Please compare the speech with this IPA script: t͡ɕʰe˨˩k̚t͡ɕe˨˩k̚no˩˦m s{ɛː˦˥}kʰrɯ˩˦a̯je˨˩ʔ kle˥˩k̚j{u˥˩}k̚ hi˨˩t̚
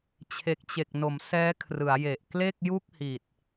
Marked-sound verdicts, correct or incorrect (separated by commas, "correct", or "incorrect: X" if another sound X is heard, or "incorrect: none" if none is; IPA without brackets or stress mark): correct, correct